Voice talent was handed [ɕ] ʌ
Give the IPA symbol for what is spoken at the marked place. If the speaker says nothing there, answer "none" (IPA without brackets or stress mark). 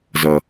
z